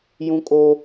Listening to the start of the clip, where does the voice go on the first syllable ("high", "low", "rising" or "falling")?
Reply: high